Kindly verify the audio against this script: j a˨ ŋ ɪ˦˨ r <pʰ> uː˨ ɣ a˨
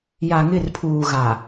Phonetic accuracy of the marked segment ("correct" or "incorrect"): correct